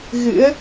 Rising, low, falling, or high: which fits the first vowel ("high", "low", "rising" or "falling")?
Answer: rising